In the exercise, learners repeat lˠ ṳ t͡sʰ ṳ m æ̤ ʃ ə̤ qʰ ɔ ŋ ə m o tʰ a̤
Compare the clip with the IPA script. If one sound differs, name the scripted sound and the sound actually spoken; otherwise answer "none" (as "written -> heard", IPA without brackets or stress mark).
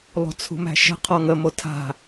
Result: none